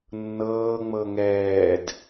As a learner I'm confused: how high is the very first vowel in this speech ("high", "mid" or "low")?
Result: mid